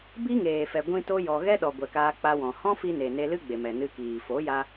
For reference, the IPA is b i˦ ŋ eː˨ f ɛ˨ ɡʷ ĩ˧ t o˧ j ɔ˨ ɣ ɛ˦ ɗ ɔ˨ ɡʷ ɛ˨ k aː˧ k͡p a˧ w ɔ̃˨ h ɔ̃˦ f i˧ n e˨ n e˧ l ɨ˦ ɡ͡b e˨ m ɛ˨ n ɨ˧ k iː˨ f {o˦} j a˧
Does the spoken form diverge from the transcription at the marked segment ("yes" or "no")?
yes